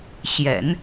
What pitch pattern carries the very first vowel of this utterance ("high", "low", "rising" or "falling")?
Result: low